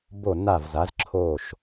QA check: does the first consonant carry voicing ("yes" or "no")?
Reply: yes